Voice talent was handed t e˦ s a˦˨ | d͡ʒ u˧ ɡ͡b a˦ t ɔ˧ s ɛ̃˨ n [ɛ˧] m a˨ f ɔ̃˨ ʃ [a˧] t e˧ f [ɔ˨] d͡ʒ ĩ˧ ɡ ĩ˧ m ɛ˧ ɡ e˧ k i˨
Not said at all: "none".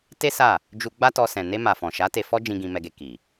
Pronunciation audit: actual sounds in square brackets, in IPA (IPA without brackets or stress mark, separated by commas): e˧, a˨˦, ɔ˦